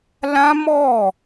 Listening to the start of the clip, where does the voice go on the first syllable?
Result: high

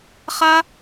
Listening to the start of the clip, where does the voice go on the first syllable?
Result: high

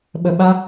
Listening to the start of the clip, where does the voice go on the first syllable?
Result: low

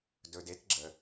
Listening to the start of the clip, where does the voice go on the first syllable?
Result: low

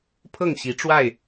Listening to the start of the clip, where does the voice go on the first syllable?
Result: falling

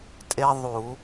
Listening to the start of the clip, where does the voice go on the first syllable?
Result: high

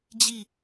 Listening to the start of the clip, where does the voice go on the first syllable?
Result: falling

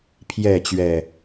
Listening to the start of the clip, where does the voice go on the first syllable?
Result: falling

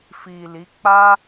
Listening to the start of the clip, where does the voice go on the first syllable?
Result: low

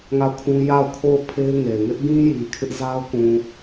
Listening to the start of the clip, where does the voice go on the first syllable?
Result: falling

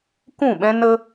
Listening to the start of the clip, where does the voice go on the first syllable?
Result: falling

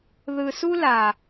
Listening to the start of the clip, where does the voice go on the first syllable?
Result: low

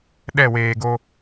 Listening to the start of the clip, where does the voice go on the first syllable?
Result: falling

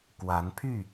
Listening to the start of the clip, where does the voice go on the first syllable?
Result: rising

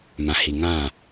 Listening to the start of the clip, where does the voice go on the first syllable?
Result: low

